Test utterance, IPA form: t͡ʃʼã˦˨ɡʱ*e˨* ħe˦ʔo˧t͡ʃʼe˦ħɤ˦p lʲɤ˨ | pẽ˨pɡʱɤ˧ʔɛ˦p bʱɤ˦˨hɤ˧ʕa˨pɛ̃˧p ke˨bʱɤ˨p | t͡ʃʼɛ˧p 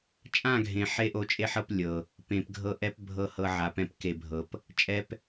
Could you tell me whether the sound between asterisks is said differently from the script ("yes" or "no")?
yes